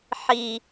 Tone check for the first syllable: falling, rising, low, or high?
low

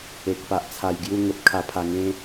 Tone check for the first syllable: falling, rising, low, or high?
low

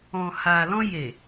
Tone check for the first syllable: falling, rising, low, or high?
low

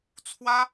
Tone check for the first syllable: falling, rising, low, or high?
high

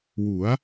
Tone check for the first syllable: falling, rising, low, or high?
rising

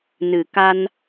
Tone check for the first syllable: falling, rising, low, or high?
low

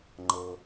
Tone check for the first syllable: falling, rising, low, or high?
low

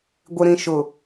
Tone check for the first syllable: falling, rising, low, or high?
low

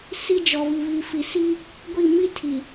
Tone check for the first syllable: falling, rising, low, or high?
high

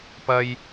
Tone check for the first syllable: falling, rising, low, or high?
high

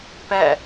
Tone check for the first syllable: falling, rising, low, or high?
falling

